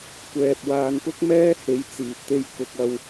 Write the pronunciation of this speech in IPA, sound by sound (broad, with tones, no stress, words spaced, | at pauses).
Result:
kʷɛː˨p̚ waː˨˧npʊ˥k̚mɛː˥he˨˥j t͡siː˨p̚t̪e˥j kʊ˨k̚ɐ˧w